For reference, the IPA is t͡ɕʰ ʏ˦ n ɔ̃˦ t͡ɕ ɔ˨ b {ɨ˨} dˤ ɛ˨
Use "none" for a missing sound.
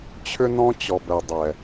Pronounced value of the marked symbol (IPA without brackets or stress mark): ɛ˨